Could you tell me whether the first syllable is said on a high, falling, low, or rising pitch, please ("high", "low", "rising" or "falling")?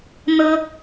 high